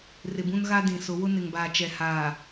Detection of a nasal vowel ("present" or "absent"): present